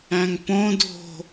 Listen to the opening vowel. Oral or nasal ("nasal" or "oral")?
nasal